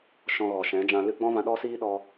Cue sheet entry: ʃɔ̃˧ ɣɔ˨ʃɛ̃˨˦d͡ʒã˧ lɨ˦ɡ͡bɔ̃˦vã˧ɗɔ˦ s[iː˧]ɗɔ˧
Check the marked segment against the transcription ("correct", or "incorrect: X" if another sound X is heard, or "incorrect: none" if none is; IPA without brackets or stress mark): incorrect: iː˦